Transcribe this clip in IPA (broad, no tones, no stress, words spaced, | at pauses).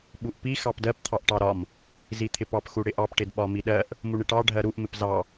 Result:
ɓuʔpi xɑpdɜp t̪ʰɑʔʈɑɾɒm | zit̪ʰɪpɑp xuɽɪʔɑp ʈɪdɓɒmiɗɜʔ | muɳɪʈɑ ɖʱɜɾuʔ mɪpzɑ